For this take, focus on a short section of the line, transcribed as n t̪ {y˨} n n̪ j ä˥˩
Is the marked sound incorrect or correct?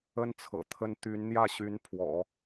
incorrect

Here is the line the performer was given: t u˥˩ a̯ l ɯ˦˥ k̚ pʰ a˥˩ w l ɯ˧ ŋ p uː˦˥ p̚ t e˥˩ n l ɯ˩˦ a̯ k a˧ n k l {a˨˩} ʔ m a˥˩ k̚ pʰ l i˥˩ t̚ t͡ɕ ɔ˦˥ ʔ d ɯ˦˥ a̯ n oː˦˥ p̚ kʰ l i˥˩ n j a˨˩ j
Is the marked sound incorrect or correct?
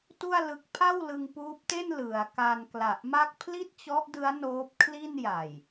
correct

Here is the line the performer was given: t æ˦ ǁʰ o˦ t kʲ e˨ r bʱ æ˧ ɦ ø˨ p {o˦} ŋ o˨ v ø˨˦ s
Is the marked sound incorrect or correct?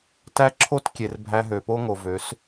correct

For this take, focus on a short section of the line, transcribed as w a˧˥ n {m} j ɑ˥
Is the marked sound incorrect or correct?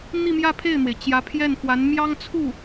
correct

